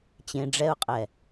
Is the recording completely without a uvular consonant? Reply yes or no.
no